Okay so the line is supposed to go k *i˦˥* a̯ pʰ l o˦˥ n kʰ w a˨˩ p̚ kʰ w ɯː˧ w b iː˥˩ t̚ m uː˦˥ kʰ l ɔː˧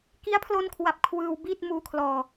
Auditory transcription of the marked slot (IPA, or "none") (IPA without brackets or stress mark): i˦˥